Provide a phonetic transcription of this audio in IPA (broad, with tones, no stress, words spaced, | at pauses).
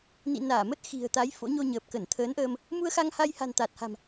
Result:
nḭ˧˨naː˧˩mə˦˥t̚ xi̤˨˩ə̯t̪a˨˦j fo̰˧˥ɲo˧ ɲəː˨˩p̚kə˧˩nt̪ʰəː˨˦nʔəː˧m | mu˧ə̯xa˧ŋha˧j ha̤˨˩nt̪a˨˩t̚ha̤˨˩m